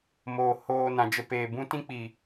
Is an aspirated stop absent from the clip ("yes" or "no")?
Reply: yes